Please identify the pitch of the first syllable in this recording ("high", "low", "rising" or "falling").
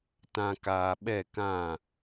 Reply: low